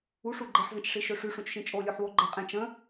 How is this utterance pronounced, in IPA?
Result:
uʂu ɡ͡ǃeħzə̃t͡ʃʂiʃø ʂyʂũt͡ʃʃĩ t͡ʃʼolʲoħwo ɡ͡ǃə qʼẽt͡ʃ ə̃

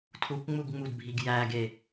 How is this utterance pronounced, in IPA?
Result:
tʰukʷŋ͡muɡŋ͡mudbʱiɡ jæɡe

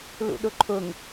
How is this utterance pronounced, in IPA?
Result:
lṵɗʊǃʰʊŋ

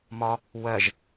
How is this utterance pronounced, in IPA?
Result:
mɒ | wɜʒ

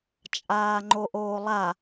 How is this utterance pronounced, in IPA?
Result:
t͡ʃʼaːŋ͡ǃoʔoːlˠa

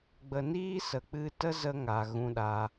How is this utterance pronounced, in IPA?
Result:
ɡ͡bə˨niː˦sə˨ k͡pɨ˧ tə˦zə˧ ŋa˨ɣũ˧ɗa˧

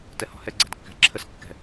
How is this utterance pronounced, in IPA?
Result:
tɛhɔ̤hɛ ɡ͡ǀæ̤dkːæ̤ǁʰəs kːɛ̤

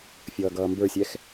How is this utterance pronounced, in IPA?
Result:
fʲʌːɡʌːmbə˞sʲɛx

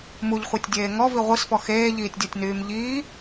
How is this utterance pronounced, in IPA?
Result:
muʎχʷetʲdʲeː ŋɔvi ʁʷisfɔ xeːʎiːtʲdʲɔtʲnyːm ʎiː

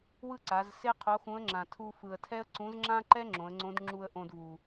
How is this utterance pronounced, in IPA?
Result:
wɯ˥ǀa˩˧zse˥ qʰo˧˥xũ˧˥ə̯ŋ͡ǁã˩ tʰu˧ fɯ˩ə̯tʰɛ˥ə̯ǀũ˧˥z ŋ͡ǁã˥ǃɛ˥ ŋ͡ǁõ˩˧ə̯ŋ͡ǀõ˧˥d ŋ͡ǁu˧ə̯ ʔõ˧dvu˩

